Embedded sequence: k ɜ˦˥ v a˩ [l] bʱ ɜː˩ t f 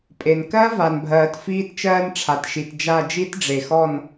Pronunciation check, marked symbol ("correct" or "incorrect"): incorrect